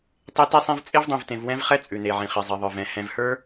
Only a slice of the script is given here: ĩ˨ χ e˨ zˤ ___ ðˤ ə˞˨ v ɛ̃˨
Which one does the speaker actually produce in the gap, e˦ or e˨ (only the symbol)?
e˨